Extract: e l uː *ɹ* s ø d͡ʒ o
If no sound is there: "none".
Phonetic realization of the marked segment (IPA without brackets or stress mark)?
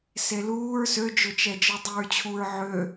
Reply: ɹ